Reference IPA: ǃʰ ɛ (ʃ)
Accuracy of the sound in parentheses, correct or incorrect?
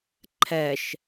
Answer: correct